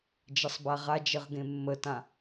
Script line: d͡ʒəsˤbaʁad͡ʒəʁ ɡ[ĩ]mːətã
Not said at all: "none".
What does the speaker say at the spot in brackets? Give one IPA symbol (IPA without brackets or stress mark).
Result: ẽ